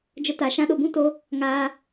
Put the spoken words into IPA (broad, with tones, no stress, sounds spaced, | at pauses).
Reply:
d͡ʒ ə˧ t a˨ ʃ ã˧ ɗ o˨ b ũ˦ t o˧ | ŋ aː˧